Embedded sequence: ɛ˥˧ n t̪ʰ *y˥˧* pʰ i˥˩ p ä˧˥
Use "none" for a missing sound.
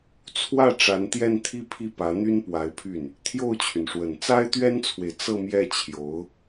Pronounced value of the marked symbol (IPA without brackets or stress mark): i˥˧